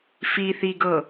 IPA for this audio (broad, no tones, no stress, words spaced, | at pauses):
fiθiɡɤ